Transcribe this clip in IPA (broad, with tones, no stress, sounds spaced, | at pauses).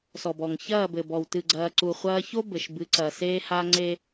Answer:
s ɔ˨ b ɔ˨ ŋ ç ɐː˦˨ b ɘ˨ b ɔ˨ w t ɨ˨ ɡ͡ǀ ɐː˨ ǀ u˨ χʷ ɐː˦ ç o˦ b ɘ˨ ʃ b ɨ˨˦ ǀ ɐː˨ s eː˦ h a˦ ŋ͡ǀ e˦